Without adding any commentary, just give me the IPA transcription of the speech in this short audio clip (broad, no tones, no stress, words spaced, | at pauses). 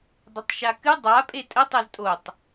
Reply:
dˤətˤʃakɨ dˤa pʼetʼə tˤeztʼotˤ